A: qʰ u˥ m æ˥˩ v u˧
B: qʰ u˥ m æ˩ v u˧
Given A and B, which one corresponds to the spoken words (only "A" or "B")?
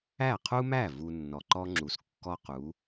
A